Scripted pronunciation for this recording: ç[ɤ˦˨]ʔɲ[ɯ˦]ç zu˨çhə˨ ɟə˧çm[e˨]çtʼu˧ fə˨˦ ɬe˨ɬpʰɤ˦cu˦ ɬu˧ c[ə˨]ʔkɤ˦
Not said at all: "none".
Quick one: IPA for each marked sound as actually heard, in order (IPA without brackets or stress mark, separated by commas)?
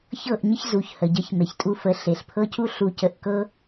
ɤ˦˨, ə˦, e˨, ə˧